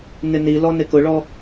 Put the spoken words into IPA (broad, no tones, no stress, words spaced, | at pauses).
nɪnilɔ nɪkʊɭɔ